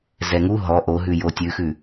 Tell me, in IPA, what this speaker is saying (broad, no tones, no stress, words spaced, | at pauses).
zɛŋu ɦɔ ʔo ɦʉjotʲʉxʉ